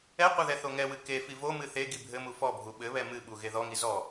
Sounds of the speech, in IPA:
ɛ qʷ ɘ ð ɛ θ o ŋ ɛ w ɨ k e f i v o m ɨ θ e ɡ i bʱ ɘ m u f ɔ bʱ u ɓ ɘ β ɛ m ɨ ɓ u ɣ e ð ɔ ŋ i z ɔ

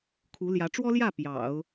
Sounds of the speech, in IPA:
kʰ u˧˥ l j ä˧˥ ʈ͡ʂ w ɔ˥ l j ä˥˩ p j ɑ̰˨˩˦ ʊ̯

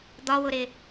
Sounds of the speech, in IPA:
d̪ ɒ w ʊ ɾ ɪ

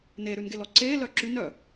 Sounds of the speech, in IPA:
n e ɾ ʉ n ɡ e l ɔ ǀ e l œ ǁ y n œ

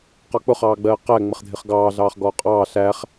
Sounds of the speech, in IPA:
q ɒ k͡p ʊ χ ɑː ɡ͡b ɜː q æ ŋ͡m ə χ dʱ ɪ χ ɡ ɑː ɮ ɑː χ ɡ ɔː qʼ ɑː ɬ æ χ

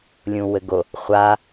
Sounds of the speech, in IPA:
lʲ ũ w ɘ ɡ o | χʷ a

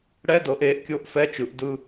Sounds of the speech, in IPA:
ɽ ɛ˧˥˧ d ɤ˩˧ ʔ eː˩˥ ʔ kʲ o˧˥˧ ʔ f ɛ˧˥˧ t͡ʃ ɯ˩˧ ʔ d ɯ˧

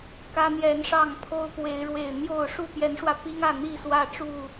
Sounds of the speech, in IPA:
k ä˦ n̪ j ɛ˨˦ n ʂ ɑ˥˨ ŋ pʰ o˦ ʊ̯ p w e˨˦ ɪ̯ ɻ w e˨˩ ɪ̯ n̪ j o˥˨ ʊ̯ ʂ u˥˨ p j ɛ˨˦ n ʂ w ä˧ p i˦ ŋ ä˥˨ n̪ i˥˨ s w ä˥˨ ʈ͡ʂ u˥˨

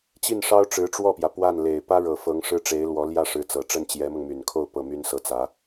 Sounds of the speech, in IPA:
t͡ɕ i˥˩ n ʂ ɑ˥ ʊ̯ ʈ͡ʂ ɻ̩˧˥ ʈ͡ʂ w ɔ˥˩ p j ä˩ p w a˥˩ n l e˨˩ ɪ̯ p ä˥ ɻ ɤ˨˩ f ɤ˧˥ ŋ ʂ ɻ̩˥ ʈ͡ʂ e˧˥ ɪ̯ l w ɔ˧˥ l j ä˥˩ ʂ ɻ̩˧˥ t͡s ɤ˨˩ ʈ͡ʂ ə˥˩ n t͡ɕ j ɛ˧˥ m ɤ˧ ŋ m y˨˩ n kʰ o˥˧ ʊ̯ p ɤ˥˩ m y˥ n s ɤ˥˩ t͡s ä˧˥

